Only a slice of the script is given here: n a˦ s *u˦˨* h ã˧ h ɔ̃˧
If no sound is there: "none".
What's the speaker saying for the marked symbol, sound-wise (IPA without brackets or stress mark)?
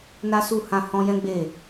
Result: u˦˨